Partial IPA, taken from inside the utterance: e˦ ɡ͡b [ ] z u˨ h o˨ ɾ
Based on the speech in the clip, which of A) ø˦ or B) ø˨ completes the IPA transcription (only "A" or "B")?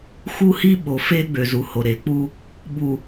B